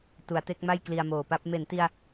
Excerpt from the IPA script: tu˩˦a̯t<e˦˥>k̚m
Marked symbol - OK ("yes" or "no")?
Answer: yes